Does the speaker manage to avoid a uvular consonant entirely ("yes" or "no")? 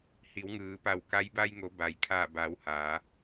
yes